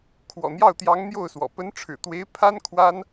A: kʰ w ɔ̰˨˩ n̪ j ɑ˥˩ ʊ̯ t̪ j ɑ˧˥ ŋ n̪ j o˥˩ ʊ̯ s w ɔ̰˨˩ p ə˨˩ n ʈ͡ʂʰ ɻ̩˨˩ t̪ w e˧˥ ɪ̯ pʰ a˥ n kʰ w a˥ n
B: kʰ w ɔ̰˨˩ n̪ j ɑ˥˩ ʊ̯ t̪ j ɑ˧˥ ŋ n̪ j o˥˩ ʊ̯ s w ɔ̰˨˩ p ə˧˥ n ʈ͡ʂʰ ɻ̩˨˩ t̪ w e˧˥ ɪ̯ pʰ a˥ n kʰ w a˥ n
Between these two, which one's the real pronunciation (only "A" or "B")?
B